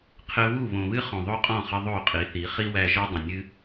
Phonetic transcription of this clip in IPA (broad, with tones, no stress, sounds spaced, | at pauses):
qʰ ɘ˧ β u˦˨ β õ˨ β ɨ˦ χ õ˨ ðˤ o˦ qʼ ɔ̃˦˨ χ ə˧ ðˤ o˦˨ qʼ i˨˦ θ i˨˦ χ i˦ w æ˧ ʒ ɔ˦ dˤ ə̃˨ nʲ ɨ˦